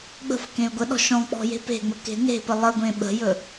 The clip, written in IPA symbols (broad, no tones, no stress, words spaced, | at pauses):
ɡ͡bə̤f kẽy̯ɡʷəɗɔ̤ ʃɔ̃k͡pɔ̤ je̤pe̤ŋ͡mə ke̤ne̤pə lˠəɡʷẽ ɓə̤jɵ